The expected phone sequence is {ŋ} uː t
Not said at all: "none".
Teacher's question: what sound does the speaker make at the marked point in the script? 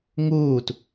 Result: ŋ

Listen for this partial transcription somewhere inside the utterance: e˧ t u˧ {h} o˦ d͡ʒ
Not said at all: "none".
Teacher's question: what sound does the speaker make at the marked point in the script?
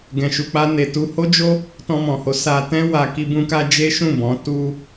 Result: h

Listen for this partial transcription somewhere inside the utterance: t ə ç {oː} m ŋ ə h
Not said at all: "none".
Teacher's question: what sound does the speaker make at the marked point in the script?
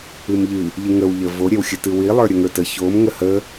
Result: o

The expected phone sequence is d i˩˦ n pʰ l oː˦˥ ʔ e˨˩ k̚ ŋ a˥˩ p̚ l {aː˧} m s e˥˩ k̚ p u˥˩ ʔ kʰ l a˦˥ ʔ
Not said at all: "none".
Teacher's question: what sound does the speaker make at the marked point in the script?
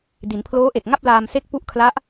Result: aː˧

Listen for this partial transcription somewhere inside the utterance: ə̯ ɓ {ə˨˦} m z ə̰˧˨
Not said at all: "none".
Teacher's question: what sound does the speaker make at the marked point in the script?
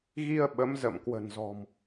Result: ə˨˦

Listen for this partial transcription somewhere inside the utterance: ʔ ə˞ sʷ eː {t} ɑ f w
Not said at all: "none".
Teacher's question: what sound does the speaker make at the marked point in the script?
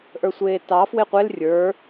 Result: t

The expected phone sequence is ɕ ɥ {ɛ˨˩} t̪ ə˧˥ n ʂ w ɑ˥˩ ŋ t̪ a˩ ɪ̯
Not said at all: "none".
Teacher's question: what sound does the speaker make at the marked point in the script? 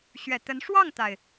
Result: ɛ˨˩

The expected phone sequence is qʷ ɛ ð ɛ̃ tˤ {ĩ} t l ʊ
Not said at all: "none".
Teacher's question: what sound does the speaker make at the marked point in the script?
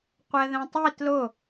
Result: i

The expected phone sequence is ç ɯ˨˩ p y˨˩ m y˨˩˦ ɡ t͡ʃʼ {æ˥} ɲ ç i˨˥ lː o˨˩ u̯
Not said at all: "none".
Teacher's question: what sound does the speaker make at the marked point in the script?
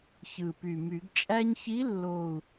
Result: æ˥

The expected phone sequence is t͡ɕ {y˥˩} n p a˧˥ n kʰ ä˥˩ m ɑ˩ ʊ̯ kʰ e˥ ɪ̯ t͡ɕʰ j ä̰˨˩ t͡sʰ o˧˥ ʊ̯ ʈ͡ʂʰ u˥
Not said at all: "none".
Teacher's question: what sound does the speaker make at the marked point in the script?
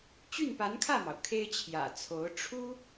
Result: y˥˩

